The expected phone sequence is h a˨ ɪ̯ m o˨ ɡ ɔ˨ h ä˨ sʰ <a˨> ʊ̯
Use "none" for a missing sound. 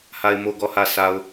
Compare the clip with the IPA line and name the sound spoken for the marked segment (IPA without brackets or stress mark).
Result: a˨